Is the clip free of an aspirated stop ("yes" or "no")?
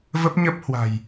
yes